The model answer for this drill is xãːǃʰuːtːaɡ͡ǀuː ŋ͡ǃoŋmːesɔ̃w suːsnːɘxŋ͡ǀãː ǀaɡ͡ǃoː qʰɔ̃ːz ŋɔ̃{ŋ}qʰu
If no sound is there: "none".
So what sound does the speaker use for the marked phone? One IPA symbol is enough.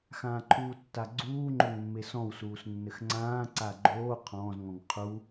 ŋ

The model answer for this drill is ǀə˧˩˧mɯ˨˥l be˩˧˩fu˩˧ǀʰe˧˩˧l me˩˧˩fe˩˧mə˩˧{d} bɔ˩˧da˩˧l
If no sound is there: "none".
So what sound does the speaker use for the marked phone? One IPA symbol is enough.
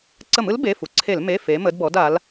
d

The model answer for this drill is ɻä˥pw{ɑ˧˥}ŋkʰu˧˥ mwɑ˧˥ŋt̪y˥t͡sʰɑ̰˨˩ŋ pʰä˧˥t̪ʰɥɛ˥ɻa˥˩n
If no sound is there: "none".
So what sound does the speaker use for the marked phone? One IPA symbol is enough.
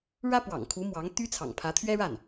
ɑ̰˨˩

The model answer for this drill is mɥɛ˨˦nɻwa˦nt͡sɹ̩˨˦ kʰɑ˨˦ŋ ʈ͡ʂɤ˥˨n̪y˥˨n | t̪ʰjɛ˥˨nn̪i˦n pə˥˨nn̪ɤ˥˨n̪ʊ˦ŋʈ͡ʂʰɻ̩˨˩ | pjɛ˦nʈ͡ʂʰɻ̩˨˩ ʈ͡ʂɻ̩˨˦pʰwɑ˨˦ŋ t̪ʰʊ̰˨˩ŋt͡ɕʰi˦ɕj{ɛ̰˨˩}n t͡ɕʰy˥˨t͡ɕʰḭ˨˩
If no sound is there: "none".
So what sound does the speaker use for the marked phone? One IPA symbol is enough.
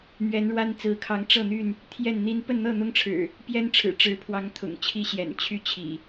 ɛ̰˨˩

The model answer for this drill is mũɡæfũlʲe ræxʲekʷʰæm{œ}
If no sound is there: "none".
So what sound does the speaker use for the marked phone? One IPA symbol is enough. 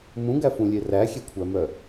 œ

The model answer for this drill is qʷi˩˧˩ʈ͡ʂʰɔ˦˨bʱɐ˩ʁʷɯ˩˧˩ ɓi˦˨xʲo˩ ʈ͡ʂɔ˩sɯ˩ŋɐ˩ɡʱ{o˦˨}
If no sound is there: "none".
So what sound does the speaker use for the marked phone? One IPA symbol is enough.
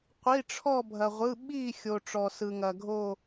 o˦˨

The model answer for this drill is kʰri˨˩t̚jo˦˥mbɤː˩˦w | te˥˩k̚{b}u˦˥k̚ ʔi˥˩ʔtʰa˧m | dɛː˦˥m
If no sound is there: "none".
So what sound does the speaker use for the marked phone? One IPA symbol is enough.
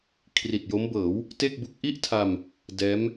b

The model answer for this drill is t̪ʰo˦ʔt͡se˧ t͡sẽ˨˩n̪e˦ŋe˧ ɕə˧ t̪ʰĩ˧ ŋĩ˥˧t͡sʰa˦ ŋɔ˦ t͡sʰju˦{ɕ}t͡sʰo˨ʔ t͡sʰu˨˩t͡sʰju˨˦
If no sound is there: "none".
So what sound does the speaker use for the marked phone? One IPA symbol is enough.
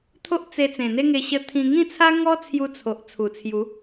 none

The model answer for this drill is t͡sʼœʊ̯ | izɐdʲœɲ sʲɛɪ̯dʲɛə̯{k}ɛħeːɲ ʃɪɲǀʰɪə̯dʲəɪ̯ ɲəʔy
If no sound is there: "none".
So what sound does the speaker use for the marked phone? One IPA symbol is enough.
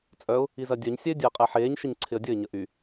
qʼ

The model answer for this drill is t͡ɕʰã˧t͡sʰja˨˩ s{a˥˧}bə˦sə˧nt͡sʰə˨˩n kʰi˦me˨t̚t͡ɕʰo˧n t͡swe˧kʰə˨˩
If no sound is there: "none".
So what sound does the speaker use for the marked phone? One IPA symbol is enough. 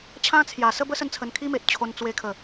ə˥˧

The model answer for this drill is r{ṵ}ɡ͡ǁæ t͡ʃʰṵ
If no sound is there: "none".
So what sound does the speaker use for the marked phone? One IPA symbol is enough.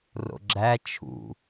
o̰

